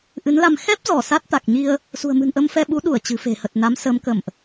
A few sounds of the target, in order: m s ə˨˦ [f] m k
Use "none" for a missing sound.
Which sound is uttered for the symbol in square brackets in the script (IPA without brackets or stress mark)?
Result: none